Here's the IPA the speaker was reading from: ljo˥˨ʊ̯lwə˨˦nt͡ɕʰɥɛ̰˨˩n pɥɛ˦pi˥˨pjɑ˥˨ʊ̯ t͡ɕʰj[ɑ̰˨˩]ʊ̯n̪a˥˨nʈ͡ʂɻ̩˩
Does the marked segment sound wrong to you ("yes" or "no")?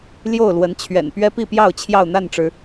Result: yes